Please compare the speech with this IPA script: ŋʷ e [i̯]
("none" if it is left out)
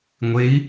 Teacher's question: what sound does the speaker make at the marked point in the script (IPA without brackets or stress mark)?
i̯